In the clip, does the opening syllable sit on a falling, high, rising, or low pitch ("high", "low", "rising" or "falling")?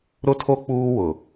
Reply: high